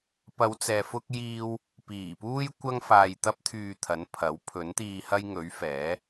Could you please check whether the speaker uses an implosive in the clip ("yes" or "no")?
no